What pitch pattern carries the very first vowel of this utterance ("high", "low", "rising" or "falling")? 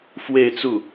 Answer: falling